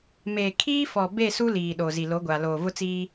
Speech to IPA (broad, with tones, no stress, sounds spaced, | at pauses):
m eː˨ kʰ iː˦ f ɔ˨ b e˦˨ s u˦ l iː˨ ɗ o˨ z i˨ l o˨˦ ɡʷ a˨ l oː˨ v ʊ˦ t͡s iː˦